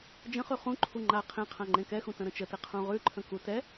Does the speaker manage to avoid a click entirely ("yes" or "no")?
no